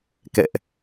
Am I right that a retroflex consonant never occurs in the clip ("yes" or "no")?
yes